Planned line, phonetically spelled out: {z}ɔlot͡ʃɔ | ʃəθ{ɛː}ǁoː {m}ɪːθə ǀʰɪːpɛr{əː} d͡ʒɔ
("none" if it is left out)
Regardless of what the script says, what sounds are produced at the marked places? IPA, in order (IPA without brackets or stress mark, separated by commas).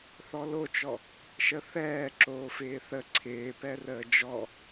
θ, ɛː, f, əː